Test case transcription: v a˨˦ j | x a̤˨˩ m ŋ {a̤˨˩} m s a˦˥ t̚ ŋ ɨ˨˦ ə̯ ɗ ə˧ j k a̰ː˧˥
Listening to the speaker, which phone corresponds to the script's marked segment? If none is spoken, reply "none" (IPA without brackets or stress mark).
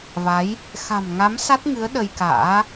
a˨˦